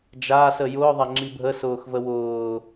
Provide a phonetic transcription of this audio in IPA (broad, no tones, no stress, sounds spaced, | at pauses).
d͡ʒ aː s ə j ʊː ðˤ a ŋ͡ǁ i bʱ ə s ʊː x v ə w ʊː